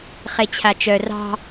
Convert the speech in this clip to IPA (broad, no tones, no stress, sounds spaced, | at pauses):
χ e t͡ɕʰ a t͡ʃ œ r ɑ̤